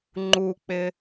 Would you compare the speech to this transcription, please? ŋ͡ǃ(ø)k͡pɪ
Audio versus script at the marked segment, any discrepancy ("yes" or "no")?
yes